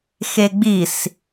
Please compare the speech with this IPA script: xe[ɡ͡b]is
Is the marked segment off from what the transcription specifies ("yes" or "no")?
no